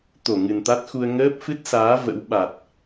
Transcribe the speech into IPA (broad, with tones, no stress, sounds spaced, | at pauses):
t̪ o˧˩ ŋ ɨ˨˩ n t̪ a˦˥ t̚ x u˧ ə̯ ŋ əː˦˥ p̚ f ɨ˦˥ t̚ s aː˨˦ v ə̰˧˥ w ɓ a˨˩ t̚